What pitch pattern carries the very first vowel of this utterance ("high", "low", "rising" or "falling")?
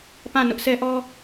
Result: falling